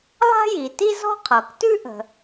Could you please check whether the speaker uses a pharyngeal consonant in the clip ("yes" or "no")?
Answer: no